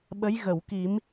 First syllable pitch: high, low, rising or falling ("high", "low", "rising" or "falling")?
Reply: rising